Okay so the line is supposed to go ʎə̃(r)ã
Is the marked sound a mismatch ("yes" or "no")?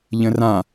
no